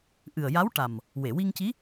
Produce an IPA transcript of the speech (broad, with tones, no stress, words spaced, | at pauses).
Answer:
ʔɨ˨˩ə̯ja˧˥wʈa˨˩m | we˨˩˨wi˧ŋci˧˥